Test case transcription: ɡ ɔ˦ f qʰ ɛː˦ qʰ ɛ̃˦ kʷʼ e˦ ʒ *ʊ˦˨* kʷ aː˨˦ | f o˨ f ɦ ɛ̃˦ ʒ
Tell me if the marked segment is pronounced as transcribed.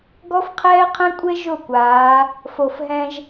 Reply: yes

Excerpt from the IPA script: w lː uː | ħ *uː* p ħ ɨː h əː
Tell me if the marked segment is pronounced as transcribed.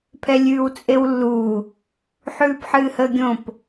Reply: no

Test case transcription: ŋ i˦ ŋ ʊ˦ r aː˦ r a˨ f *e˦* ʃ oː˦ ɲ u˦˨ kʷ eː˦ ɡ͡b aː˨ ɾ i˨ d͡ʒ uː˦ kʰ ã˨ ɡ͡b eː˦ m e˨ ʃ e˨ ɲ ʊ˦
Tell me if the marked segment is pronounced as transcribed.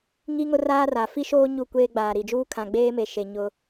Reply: no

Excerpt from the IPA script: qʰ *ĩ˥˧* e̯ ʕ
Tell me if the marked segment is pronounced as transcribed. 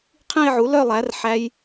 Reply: yes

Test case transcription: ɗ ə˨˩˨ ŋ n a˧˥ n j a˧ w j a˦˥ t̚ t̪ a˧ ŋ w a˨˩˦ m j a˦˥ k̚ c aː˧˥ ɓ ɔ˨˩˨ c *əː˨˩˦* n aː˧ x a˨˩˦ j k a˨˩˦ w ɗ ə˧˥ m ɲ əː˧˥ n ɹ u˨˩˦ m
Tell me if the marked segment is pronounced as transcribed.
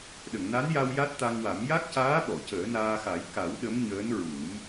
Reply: yes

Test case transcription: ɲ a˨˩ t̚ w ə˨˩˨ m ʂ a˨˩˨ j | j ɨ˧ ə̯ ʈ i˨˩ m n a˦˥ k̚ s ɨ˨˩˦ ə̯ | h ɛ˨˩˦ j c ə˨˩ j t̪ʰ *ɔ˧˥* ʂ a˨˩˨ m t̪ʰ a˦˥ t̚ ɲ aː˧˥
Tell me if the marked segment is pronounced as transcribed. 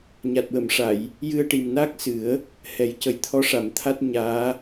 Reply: yes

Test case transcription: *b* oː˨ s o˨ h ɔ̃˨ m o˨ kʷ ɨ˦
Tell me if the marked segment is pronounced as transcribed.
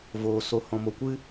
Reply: no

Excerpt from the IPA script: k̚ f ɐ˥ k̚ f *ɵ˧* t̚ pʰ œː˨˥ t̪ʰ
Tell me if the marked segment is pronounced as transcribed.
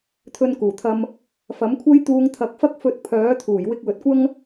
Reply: yes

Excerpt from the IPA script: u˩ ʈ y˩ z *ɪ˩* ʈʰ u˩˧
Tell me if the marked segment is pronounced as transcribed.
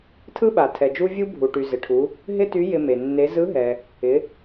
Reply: yes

